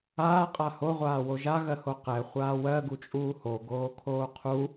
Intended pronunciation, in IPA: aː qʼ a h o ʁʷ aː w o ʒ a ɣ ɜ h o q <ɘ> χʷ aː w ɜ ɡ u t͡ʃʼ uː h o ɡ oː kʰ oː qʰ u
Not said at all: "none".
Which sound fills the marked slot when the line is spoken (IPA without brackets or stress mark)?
ɛ